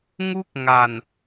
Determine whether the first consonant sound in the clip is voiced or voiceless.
voiced